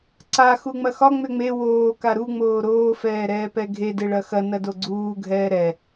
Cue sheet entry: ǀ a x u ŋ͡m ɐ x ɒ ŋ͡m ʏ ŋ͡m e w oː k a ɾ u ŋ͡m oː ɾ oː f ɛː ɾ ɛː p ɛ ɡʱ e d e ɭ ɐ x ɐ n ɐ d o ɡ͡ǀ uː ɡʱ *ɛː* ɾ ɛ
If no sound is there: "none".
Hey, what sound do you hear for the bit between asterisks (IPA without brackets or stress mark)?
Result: ɛː